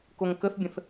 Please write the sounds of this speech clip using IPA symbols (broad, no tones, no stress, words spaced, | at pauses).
koŋkəθbʲə̃θ